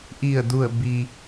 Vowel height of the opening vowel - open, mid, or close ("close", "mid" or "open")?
close